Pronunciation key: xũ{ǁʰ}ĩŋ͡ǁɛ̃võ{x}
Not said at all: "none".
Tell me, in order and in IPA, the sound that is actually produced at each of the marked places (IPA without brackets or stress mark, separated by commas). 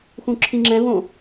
ǁʰ, none